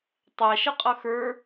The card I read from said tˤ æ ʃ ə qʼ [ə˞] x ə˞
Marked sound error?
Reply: yes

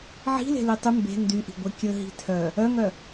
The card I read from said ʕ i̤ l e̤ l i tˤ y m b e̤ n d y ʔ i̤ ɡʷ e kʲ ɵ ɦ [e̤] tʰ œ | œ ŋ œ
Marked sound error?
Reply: yes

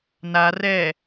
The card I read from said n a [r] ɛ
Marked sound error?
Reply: no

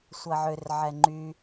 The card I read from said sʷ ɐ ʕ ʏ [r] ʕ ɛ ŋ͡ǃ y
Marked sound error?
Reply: no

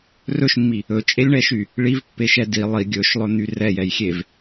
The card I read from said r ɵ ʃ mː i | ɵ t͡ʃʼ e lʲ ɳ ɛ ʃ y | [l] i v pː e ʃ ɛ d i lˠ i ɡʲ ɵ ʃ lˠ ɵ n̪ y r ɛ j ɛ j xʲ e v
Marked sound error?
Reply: yes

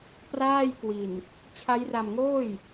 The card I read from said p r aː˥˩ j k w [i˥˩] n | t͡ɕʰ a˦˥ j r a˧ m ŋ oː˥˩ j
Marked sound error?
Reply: yes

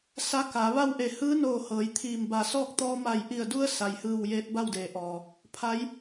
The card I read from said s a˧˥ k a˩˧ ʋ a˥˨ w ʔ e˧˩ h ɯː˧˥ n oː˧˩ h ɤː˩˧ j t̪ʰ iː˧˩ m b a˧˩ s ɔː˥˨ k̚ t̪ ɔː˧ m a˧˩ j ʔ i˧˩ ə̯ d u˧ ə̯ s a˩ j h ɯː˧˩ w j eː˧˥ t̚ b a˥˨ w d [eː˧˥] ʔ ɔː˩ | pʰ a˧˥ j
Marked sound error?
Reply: yes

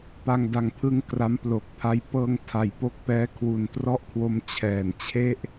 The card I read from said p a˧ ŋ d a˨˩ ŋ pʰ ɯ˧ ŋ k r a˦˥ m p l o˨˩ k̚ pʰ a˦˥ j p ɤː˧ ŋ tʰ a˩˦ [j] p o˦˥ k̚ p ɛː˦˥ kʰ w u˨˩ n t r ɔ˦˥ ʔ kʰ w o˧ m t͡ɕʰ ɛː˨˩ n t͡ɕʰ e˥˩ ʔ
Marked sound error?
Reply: no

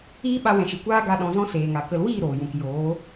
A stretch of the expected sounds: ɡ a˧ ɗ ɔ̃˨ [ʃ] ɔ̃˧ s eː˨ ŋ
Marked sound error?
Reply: yes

